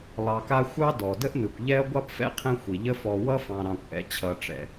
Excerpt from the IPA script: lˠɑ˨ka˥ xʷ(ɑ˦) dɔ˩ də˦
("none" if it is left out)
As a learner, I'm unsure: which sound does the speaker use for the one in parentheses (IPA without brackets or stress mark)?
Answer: ɑ˦